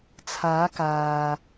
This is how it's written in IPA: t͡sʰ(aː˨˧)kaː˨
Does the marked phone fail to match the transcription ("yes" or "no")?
no